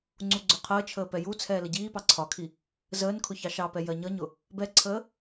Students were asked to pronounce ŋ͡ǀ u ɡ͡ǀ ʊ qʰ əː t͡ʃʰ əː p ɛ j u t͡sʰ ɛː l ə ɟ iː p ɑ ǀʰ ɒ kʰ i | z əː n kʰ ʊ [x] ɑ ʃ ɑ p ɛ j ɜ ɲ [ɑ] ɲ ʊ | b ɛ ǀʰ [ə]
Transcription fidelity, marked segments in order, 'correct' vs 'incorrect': incorrect, incorrect, incorrect

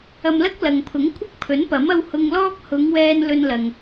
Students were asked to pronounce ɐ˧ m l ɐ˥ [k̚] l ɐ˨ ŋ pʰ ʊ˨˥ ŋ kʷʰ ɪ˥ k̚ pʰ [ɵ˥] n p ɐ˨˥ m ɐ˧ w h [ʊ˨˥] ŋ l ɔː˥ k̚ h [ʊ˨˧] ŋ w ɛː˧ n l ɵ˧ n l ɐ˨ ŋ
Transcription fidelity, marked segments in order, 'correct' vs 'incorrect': correct, incorrect, incorrect, correct

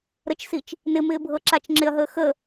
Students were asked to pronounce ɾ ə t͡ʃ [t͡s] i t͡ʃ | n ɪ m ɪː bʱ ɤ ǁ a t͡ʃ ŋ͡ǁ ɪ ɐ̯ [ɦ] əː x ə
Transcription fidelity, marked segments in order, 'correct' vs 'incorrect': incorrect, correct

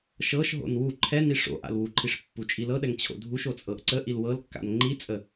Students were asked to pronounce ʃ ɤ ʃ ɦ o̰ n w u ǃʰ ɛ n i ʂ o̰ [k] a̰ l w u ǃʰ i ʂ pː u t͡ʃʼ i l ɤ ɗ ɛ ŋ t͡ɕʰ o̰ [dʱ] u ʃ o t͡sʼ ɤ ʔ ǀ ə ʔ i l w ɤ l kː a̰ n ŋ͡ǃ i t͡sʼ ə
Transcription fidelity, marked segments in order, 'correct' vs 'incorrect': incorrect, correct

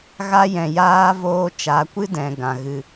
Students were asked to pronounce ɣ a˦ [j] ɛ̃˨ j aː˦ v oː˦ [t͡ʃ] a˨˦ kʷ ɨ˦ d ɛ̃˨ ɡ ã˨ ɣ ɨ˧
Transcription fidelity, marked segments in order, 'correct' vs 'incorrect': correct, correct

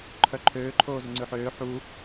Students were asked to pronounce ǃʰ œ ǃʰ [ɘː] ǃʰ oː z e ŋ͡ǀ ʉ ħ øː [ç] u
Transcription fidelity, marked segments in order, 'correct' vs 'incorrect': incorrect, incorrect

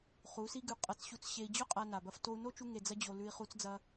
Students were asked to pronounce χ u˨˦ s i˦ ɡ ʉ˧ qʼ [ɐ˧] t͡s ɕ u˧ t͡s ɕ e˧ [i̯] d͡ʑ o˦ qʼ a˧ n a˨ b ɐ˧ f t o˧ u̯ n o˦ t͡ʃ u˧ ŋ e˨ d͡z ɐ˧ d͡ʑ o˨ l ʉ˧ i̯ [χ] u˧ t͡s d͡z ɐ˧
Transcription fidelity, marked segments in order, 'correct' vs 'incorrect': correct, correct, correct

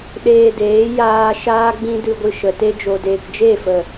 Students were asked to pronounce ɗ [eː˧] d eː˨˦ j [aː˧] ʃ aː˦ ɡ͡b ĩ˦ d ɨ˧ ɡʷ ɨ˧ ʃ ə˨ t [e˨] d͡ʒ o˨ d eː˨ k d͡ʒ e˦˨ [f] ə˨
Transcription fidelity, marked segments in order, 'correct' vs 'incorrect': correct, correct, incorrect, correct

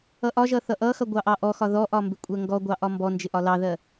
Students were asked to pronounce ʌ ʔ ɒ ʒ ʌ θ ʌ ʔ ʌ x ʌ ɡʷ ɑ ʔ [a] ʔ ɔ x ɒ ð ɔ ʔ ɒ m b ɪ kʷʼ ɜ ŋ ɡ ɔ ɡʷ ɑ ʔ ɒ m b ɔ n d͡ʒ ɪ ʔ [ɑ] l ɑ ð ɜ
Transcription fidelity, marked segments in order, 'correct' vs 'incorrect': incorrect, incorrect

